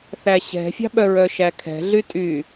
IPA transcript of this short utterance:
θæɕɛ̤fʲɑ̤ ɓœɹœʃækʰɛ̤ ɮytʼy

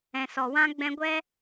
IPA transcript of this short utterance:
ɛ̃˨sɔ˨wã˦ ɡ͡bɛ̃˧ɡʷɛ˦

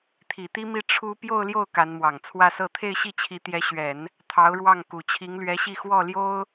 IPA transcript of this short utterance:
t̪ʰi˨˩t̪i˥mi˥˩ ʈ͡ʂʰu˥ pjo˥˧ʊ̯ljo˥˩ʊ̯ ka˧˥nmwɑ˨˩ŋ t͡sʰwä˥˧sɤ˥˧ t̪ʰe˥˧ɪ̯ɕi˥˩t͡ɕʰi˧˥ t̪jɛ˧˥ɕɥɛ˨˩˦n | t̪ʰɑ˧˥ʊ̯ɻwɑ˥˩ŋ ku˨˩t͡ɕʰi˧˥ŋlɥɛ˧˥ɕi˥˧ xwɔ˥˩ljo˥ʊ̯

